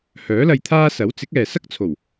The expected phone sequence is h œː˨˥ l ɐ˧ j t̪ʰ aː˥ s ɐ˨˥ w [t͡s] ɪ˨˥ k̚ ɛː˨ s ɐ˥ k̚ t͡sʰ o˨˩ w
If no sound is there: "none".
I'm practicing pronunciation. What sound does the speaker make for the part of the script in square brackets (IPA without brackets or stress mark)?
t͡s